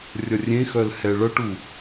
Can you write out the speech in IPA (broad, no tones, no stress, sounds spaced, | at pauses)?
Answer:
rʲ ʌ rʲ ẽ x œ l h ɛ ɭ ʌ ʈ u